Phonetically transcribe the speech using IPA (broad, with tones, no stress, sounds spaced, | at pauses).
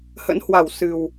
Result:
h ə̰˧˥ n h w a˧˩ w s ɨ˨˩ w